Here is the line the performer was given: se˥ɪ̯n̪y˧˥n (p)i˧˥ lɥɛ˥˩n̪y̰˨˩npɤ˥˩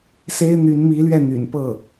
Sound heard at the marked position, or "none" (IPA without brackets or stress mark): m